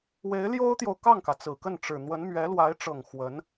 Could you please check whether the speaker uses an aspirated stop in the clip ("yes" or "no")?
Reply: no